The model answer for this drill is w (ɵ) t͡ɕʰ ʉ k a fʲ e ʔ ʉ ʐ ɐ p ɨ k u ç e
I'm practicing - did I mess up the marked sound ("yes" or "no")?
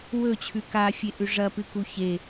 no